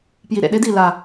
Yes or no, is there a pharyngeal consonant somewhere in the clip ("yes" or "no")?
no